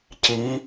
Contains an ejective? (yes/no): no